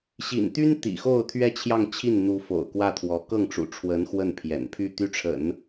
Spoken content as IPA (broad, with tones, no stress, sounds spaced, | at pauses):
ɕ ḭ˨˩ n t̪ y˥ n t̪ ḭ˨˩ x o˥˧ ʊ̯ t̪ʰ ɥ ɛ˥˧ t͡ɕʰ j ɑ˥˧ ŋ t͡ɕʰ i˥˩ n n̪ u˧˥ f o̰˨˩ ʊ̯ k w ä˥˩ t̪ʰ w ɔ˧˥ k ɤ˥˩ ŋ ʈ͡ʂ ṵ˨˩ ʈ͡ʂʰ w ə˧˥ n x w ə˥˩ n pʰ j ɛ̰˨˩ n pʰ y˥˧ t̪ y˥˩ ʈ͡ʂʰ ə̰˨˩˦ n